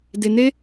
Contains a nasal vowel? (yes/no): no